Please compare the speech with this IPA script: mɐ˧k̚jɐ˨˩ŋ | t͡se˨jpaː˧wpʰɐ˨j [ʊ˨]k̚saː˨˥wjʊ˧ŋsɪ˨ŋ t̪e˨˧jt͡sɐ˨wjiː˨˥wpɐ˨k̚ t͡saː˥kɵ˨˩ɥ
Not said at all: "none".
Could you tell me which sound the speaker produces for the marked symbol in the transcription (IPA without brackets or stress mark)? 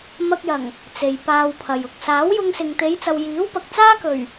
ʊ˨